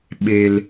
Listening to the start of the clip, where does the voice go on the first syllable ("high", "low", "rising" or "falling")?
low